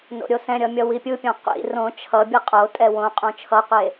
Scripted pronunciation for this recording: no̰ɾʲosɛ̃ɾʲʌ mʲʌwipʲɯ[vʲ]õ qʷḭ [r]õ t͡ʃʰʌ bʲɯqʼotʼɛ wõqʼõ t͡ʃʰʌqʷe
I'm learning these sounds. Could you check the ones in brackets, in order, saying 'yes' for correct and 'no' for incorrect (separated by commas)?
no, yes